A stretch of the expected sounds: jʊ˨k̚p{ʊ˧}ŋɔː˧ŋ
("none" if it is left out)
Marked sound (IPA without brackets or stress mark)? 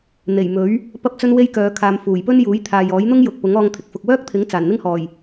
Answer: ʊ˨˥